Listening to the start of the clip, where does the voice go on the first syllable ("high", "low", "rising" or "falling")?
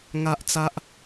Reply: high